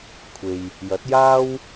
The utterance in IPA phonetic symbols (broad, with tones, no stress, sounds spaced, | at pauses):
kʷʰ e˨ j | j ɐ˨˥ t̚ j aː˥ w